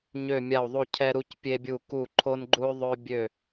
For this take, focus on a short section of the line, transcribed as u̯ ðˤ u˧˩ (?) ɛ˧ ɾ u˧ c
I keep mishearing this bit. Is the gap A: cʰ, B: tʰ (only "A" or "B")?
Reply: A